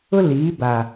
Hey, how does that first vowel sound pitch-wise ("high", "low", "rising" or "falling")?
high